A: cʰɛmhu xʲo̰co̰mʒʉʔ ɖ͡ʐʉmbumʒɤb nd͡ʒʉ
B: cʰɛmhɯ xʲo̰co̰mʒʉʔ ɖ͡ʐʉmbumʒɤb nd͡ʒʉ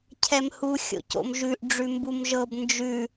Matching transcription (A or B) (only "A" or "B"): A